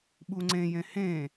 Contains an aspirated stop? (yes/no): no